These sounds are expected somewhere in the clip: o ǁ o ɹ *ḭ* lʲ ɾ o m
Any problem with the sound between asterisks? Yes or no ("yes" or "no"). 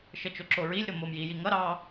yes